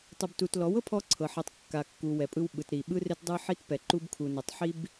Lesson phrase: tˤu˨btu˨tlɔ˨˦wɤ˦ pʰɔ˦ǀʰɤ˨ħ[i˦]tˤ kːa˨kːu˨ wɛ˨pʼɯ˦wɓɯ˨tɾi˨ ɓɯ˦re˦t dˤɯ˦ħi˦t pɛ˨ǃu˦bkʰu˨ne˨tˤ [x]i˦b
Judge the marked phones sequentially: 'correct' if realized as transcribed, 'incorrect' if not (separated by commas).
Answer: incorrect, incorrect